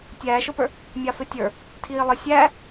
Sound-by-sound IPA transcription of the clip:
tʲæːʃʊpə˞ | mʲɑfɪtʲə˞ | tʰiːlˠɪ sʲæː

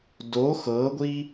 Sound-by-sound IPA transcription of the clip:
do xɤɡʷi

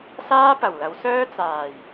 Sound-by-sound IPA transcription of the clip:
saː˥pɐ˨˩wlɐ˨˥wsœː˥ t͡saː˨˩j

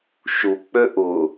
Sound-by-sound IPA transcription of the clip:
ʃu k͡pøʔʊ

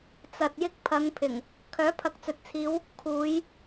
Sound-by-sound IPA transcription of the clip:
t͡sɐ˨t̚jɪ˧k̚ pʰɐ˨˧ŋpʰɪ˨˩ŋ | kʰœː˨˥pʰɐ˨˥k̚t͡sɵ˨t̚t͡sʰiː˨˧w | kʰuː˨˧j

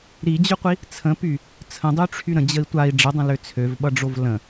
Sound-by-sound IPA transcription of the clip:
ɾid͡ʑʏqʷi | t͡sʰə̃py | t͡sʰə̃dˤyʈ͡ʂʰy ɾə̃d͡ʑəi̯ tʷai̯ ɖ͡ʐədˤə̃lø t͡sʰøvɓʌɖ͡ʐov lə̃

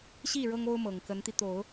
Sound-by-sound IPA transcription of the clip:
ɕi˥˩ ɻɤ˥ŋo˥ʊ̯mɤ˨˩ŋ kə˧˥nt̪i˧t̪o˨˩˦ʊ̯

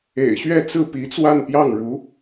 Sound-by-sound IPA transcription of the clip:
ḛ˨˩ɪ̯ɕɥɛ˥˧ t͡sɹ̩˥˩pi˧˥t͡swa˥˧n pjɑ˥˩ŋɻu˧˥

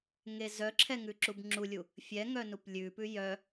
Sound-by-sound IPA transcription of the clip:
ŋezœǁʰɛ ŋʉǁubŋ͡ǁulʲu | fʲɛŋœ nuplʲʉpʉ jœ

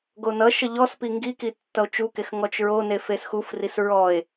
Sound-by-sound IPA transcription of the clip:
ɡonʌʃʌ ʎɔspi ŋɡiki tːʌo̯t͡ʃukex ŋɔt͡ʃɹone fesxufris ɹɔe̯

